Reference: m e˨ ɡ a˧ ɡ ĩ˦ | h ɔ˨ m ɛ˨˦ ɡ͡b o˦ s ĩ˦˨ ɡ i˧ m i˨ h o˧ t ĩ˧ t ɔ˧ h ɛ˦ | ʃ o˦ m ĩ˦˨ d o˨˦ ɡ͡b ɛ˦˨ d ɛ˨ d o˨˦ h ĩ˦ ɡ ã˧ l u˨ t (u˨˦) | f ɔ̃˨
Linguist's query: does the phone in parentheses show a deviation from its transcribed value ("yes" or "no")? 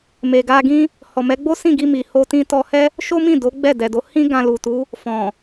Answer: no